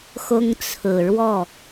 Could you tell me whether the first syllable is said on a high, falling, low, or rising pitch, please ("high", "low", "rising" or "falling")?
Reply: high